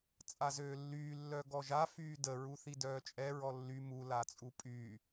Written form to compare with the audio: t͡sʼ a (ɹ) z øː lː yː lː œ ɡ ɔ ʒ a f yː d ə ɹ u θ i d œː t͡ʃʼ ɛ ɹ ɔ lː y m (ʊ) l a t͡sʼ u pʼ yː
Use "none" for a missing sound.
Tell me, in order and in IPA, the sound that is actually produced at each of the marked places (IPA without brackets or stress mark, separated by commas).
none, u